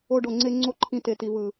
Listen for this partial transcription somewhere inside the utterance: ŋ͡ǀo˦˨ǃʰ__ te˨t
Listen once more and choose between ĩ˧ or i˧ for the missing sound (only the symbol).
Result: ĩ˧